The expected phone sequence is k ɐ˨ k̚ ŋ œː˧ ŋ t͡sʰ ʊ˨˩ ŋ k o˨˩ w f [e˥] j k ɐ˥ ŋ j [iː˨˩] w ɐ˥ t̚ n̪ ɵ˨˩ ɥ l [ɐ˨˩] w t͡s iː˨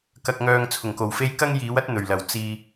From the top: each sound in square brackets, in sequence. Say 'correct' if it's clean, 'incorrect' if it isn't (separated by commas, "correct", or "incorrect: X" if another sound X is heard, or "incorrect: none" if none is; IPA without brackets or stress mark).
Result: correct, incorrect: iː˨˥, correct